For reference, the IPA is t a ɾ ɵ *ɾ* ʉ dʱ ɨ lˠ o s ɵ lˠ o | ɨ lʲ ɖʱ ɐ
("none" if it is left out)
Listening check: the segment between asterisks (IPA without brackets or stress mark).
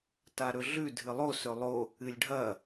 ɮ